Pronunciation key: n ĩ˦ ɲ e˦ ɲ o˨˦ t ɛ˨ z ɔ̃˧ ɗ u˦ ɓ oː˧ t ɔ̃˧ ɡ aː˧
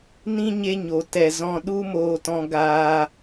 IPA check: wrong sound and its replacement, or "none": ɓ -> m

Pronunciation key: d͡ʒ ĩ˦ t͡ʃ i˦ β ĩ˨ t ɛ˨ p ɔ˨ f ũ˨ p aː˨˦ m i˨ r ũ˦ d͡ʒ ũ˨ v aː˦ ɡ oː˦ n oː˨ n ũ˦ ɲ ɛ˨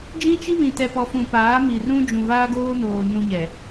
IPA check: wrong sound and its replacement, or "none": none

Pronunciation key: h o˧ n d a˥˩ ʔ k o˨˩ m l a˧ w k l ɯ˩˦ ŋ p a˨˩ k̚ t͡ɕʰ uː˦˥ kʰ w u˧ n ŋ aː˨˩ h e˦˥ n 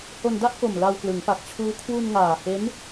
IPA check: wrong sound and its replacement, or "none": none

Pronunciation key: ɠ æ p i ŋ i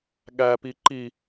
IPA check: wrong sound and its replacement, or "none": ŋ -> ǃ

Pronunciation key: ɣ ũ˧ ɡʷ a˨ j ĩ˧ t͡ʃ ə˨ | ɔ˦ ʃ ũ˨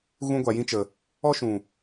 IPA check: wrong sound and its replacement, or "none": none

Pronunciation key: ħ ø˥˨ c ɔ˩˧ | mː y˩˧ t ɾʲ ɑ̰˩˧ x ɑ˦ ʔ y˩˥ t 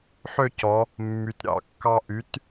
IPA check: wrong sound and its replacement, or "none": x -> kː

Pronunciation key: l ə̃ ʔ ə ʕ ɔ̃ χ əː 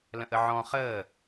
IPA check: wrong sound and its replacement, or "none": none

